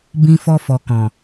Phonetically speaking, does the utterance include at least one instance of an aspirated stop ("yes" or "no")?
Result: no